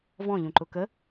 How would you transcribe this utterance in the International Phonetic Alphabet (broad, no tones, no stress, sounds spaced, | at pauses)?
v ɔ̃ ʎ ũ ǃ ʊ k ə